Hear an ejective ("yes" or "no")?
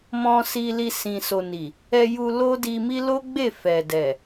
no